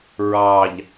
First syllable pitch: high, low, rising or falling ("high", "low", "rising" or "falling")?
low